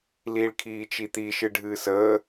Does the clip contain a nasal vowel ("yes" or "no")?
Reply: no